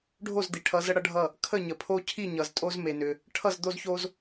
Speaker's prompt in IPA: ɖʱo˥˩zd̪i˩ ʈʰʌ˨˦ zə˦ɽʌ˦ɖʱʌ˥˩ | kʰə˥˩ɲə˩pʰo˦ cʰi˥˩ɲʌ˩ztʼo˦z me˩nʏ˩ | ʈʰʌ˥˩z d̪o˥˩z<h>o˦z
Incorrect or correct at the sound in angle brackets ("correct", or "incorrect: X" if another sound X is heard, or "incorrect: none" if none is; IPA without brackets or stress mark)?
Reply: incorrect: ç